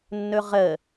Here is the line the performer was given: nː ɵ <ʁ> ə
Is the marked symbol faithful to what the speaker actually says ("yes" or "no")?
yes